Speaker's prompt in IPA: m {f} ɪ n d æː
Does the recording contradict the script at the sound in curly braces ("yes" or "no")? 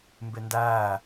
yes